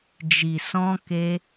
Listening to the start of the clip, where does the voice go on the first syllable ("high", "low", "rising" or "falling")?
low